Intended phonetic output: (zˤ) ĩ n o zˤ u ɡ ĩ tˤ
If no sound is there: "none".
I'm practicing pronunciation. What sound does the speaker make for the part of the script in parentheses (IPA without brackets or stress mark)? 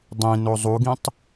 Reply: dˤ